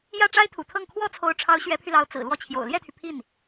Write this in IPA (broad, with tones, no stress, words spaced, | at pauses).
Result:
jä˥˩ʈ͡ʂa˥ɪ̯t̪ʰṵ˨˩t̪ʰɤ˥˩ŋ kʰwɔ˥t͡sʰo˧˥ʊ̯ʈ͡ʂʰɑ˧˥ʊ̯ ɕɥɛ˧˥pʰy˧lɑ˧˥ʊ̯ t͡sɹ̩˨˩ lwɔ˥˩t͡ɕʰjo̰˨˩ʊ̯ ljɛ˥˩t̪ʰy˩ pʰi˥˩n